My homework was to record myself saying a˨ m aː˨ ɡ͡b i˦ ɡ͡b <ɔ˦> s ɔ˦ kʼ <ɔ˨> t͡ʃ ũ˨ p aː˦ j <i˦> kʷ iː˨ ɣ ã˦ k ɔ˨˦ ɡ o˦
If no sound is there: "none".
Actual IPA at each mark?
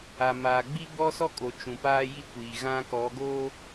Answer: ɔ˦, o˨, i˦

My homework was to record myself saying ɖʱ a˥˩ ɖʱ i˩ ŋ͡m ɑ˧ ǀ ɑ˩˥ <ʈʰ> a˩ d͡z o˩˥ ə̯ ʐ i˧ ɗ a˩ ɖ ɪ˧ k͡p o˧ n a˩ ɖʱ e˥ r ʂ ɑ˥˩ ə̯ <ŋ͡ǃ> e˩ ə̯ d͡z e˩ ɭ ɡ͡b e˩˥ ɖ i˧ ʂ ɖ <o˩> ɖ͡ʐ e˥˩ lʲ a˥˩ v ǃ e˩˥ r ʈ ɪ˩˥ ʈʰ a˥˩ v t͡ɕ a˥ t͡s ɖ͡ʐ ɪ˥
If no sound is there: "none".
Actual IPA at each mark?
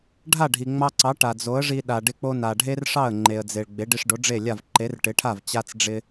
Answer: ʈ, ŋ͡ǃ, o˩˥

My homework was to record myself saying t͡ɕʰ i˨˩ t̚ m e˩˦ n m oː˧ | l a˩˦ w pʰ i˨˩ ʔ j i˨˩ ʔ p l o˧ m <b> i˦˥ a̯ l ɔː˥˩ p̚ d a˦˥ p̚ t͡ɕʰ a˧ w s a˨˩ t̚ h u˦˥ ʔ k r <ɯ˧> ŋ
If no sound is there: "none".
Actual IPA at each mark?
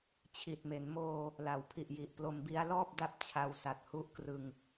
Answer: b, ɯ˧

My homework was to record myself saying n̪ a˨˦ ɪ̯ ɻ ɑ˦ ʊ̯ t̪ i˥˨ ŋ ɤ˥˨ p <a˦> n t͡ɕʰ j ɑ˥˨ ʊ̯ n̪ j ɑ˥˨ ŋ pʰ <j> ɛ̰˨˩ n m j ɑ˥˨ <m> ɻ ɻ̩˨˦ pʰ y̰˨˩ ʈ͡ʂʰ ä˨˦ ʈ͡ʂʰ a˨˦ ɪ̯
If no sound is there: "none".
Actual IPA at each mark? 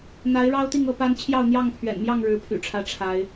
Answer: a˦, ɥ, ŋ

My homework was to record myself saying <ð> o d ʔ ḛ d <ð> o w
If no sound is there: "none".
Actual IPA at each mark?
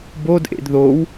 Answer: b, ð

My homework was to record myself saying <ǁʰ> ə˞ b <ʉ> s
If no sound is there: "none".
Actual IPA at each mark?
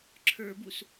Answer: ǁʰ, u

